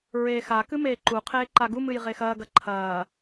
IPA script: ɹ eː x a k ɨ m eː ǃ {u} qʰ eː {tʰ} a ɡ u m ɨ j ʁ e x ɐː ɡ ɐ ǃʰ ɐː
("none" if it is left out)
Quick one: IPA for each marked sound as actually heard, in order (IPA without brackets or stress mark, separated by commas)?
u, ǃ